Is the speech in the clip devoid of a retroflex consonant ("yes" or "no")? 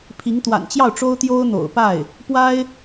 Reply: no